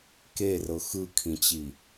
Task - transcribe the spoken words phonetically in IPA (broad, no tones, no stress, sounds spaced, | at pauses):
k e r ɤ x ɯ kʰ ĩ t͡ɕ i